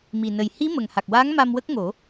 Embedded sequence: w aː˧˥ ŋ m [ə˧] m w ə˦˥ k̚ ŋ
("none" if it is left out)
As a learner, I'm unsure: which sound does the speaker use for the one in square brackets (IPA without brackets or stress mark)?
a˧